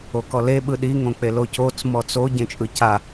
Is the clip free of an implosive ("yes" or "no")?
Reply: no